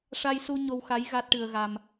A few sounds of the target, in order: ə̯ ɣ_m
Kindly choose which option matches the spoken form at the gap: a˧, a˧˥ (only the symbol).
a˧